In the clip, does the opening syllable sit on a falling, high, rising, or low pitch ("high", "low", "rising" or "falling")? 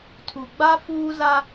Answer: low